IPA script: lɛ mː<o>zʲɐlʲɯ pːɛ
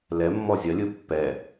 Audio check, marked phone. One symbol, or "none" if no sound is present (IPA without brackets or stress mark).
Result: ɔ